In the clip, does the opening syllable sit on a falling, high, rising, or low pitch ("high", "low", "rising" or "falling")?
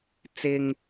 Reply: low